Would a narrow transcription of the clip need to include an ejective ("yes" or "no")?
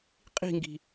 yes